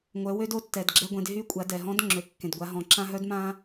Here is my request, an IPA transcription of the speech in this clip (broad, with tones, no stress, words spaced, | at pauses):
ŋʷœ˩˧wø˧d o˧˥tːɛ˩dɡ͡ǁɛ˧ɡʷẽ˩˧d ɦy˧˥kʷʼa˩˧ dɛ˩ɦɔ̃˧˥dŋ͡ǁø˩ kːẽ˩dɡʷa˩˧ ɦɔ̃˩ǁã˧ɦœ˧˥d mã˧